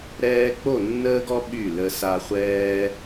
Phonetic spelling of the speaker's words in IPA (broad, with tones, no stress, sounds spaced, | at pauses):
ɾ ɛː˦ k͡p o˦˨ nː əː˦ ɡ ɔ˦ ɓ y˦˨ l ə˦ s a˦ χʷ ɛː˦